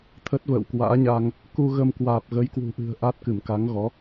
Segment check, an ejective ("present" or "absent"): absent